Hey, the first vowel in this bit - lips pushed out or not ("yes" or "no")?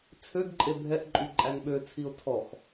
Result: yes